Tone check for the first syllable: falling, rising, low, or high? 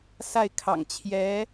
falling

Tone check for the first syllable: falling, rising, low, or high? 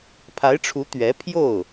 rising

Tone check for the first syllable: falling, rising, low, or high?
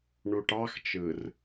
low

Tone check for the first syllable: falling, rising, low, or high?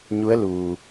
rising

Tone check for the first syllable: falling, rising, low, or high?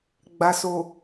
low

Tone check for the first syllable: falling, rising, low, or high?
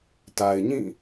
low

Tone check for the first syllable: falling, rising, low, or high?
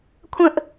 high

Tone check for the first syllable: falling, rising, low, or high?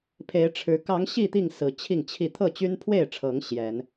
rising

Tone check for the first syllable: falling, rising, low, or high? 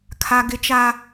high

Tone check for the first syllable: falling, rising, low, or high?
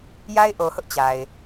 high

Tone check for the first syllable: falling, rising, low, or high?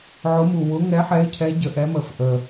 rising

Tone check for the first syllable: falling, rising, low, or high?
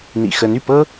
low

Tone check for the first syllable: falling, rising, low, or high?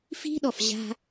high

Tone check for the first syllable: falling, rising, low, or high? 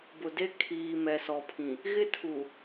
low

